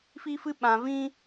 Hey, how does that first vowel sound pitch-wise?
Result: high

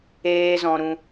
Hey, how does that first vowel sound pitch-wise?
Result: high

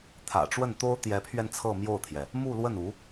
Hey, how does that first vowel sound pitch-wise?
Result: low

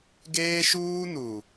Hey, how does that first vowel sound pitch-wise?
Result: high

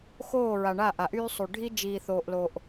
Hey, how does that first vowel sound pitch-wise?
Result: falling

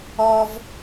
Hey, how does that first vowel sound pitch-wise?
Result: high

